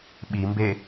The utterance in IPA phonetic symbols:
ɓimbe

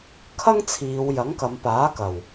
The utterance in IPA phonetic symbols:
kʰɐ˥ŋt͡sʰiː˨˧w jɐ˨˥ŋkɐ˨˧mpaː˨˥ kɐ˨˩w

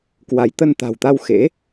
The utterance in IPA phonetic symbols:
kwa˨˦jt̪ə˧nt̪a̤˨˩wt̪a˧w xḛ˧˥

